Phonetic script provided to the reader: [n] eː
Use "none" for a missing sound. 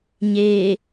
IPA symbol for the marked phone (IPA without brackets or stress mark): ɲ